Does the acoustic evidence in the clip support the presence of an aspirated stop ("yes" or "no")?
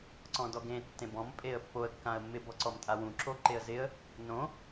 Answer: no